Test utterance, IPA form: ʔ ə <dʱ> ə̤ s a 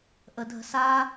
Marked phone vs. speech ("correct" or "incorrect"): correct